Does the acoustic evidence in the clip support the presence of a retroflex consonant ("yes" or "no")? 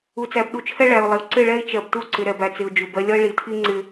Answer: yes